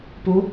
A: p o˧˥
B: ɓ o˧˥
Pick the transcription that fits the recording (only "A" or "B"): A